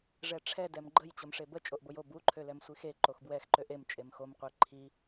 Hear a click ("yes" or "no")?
yes